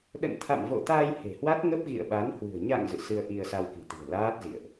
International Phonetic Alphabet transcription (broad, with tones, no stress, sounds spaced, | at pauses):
ɗ ə̰˧˨ n t̪ʰ a̰˧˨ m v o̰˧˨ t̪ a˧ j h e̤˨˩ h w a˦˥ t̚ ŋ ə˦˥ p̚ ɣ ḭ˧˨ ə̯ ɓ a˨˦ n h w ɨ̤˨˩ ə̯ ɲ a̰˧˨ ŋ z ɨ̰˧˨ s ɨ˧ ə̯ ʔ i˧ ə̯ s a˧ w k i̤˨˩ t̪ i̤˨˩ ə̯ l aː˦˥ t̚ z ḭ˧˨ ə̯ ʔ